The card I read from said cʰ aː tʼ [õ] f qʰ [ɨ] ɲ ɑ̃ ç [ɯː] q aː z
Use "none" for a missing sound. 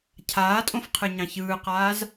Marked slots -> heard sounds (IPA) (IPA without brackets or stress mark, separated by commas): õ, ɨ, ɯː